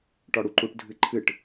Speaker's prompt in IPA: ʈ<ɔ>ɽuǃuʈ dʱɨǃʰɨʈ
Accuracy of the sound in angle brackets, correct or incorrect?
correct